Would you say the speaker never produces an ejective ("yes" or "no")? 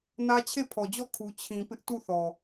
yes